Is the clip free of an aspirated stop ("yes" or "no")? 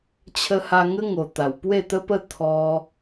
no